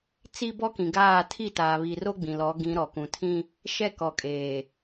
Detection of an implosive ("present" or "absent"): absent